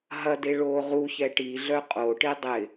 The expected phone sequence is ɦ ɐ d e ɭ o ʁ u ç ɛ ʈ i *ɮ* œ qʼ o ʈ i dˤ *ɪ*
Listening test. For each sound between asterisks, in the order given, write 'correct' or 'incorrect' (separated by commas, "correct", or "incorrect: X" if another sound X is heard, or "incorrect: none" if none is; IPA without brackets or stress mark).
correct, correct